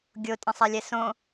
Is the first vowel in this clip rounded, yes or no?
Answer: yes